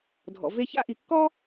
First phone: dʱ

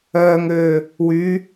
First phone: œː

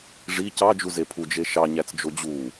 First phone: ʐ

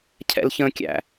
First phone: cʰ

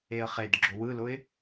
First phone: e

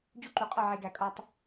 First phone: d͡ʑ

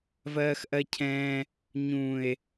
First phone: v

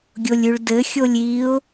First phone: ɡʲ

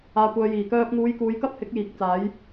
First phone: aː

